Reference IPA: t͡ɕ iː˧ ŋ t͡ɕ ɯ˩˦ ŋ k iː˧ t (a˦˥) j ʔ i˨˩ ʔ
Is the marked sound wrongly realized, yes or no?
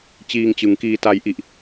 yes